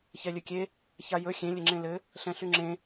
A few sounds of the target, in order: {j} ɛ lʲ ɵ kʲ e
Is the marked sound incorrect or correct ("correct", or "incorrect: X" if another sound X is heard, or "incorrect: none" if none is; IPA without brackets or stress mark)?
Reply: incorrect: ç